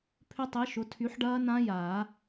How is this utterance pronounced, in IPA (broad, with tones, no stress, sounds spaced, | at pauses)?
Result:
pʰ ʏ˦˥ tˤ i˨˥ ʃ ʊ˨˥ tʰ y˨˥ ħ ɖ ɐː˦˥ n ã˦˥ j aː˨˩˦